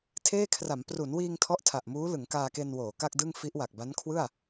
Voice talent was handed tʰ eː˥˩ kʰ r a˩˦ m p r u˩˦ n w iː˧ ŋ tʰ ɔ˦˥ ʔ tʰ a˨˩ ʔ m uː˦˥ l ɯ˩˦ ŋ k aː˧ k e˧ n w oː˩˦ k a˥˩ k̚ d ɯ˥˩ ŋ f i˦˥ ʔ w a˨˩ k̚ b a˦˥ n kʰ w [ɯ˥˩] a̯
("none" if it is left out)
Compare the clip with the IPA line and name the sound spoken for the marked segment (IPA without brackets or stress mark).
ɯ˥˩